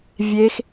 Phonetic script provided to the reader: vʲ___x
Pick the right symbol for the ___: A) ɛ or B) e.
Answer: B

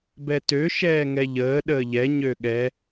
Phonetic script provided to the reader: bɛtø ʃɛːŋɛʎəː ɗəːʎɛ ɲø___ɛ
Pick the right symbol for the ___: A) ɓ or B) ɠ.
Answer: B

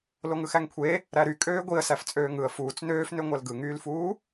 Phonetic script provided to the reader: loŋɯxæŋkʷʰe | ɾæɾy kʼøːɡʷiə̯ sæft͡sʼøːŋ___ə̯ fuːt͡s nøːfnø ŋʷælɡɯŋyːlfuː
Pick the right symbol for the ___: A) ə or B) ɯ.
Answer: B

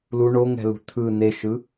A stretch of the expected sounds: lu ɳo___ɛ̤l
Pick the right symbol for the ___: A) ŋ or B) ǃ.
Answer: A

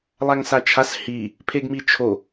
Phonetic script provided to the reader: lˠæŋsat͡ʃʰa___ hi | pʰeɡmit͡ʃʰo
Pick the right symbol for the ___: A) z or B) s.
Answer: B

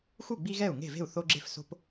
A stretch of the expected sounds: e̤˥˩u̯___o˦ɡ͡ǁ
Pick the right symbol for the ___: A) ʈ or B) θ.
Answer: B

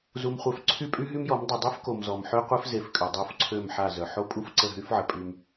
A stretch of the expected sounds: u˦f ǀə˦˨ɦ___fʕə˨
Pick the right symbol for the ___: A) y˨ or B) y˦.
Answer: B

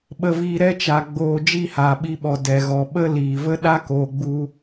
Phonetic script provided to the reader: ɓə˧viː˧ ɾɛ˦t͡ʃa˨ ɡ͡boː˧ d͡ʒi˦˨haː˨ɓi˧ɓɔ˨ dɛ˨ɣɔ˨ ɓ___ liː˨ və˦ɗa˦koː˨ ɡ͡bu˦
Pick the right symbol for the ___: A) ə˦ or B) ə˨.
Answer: A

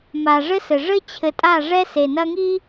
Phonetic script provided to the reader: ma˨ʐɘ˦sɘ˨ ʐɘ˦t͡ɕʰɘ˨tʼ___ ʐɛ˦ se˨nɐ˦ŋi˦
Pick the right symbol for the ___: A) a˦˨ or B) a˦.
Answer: A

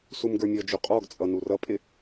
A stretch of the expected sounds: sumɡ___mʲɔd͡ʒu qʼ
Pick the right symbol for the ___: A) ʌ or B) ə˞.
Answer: B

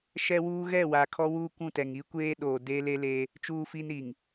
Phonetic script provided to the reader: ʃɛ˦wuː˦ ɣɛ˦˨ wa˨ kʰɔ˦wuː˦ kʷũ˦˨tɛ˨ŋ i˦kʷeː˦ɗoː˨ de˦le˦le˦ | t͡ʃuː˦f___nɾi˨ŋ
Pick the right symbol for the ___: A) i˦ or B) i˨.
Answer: A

